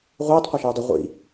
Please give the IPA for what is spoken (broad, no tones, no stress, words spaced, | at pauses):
ʁʷiːtˤ qʷaʃeːdˤə ʁʷḭ